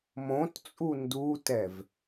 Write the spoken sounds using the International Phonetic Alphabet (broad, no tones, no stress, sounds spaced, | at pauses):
m õ t t͡sʼ u n d u t ɛ v